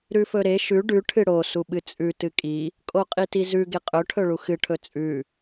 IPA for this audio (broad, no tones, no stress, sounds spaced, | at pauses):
ɾ ʉ f ɵ ɾ e ʃ ʉ ɖ ʉ ʈʰ ɨ ɽ o s u ɓ ɨ t͡sʼ ʉ t ɨ kʼ i | kʼ o qʼ i t i z ʉ ɡ e qʼ ɵ ʈʰ ɵ ɭ u x ɨ ʈʰ ɵ t͡sʼ ʉ